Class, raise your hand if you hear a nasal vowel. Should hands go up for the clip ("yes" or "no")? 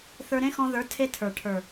yes